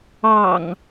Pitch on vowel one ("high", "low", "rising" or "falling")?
low